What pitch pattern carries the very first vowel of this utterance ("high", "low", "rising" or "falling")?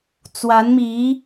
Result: rising